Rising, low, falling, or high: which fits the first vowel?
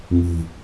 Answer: low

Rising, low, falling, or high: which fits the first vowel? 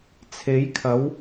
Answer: rising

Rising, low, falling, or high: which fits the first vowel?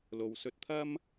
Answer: low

